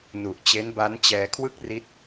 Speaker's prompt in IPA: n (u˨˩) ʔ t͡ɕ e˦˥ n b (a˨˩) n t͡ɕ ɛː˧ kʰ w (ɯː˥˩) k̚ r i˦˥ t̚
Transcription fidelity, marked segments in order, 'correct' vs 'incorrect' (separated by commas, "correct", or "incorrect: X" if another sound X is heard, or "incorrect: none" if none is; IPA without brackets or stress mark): correct, incorrect: a˦˥, incorrect: ɯ˥˩